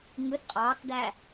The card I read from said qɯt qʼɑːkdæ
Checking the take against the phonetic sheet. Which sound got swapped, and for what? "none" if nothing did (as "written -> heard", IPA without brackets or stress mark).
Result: q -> ŋ